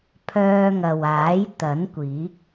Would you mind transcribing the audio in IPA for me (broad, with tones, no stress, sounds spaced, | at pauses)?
pʰ œː˧ ŋ ɐ˨ w aː˨˥ j t̪ ɐ˨˥ n kʷ iː˨˥ k̚